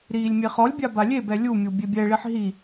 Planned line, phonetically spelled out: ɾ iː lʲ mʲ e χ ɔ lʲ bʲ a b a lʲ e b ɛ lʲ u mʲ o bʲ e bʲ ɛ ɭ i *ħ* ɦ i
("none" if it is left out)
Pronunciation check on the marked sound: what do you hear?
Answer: ħ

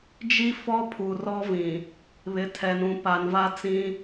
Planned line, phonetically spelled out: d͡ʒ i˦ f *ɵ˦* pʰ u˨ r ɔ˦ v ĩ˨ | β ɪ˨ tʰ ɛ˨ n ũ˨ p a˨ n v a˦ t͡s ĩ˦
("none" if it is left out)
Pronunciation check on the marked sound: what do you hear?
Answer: ɔ˦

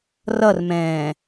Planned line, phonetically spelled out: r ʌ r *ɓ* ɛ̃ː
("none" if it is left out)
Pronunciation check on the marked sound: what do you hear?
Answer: m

